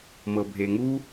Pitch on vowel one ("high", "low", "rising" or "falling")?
low